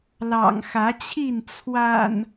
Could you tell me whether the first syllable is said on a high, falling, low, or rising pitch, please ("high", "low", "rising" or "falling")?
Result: low